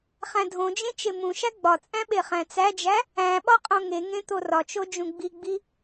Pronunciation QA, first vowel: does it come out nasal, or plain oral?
nasal